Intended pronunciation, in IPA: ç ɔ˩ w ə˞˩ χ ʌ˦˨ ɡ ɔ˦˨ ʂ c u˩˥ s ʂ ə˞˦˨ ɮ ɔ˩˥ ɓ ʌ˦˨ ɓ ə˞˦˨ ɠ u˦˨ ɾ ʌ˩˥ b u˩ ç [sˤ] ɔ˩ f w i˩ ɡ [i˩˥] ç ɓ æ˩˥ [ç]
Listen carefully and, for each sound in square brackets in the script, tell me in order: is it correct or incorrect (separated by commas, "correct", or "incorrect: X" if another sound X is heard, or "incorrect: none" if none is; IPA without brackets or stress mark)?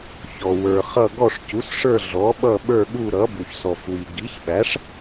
incorrect: s, correct, incorrect: ʂ